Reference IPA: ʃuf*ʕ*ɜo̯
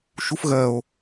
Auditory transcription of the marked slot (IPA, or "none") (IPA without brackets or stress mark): ɣ